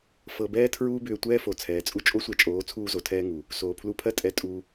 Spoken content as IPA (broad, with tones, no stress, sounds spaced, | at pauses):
f ɤ˧ b ɛː˦ tʰ ɹ uː˦ b ʏː˧ tʷ ɛː˦ f o˨ t͡sʰ ɛː˨ t͡sʼ u˦ t͡ʃʼ o˦ sʷ ɛ˧ t͡ʃʼ oː˨˦ t͡sʰ uː˧ z o˨ tʰ ɛː˧ ŋ u˨ | s oː˨ pʰ l u˧ pʰ ɜ˦ tʼ ɛ˧ tʼ u˧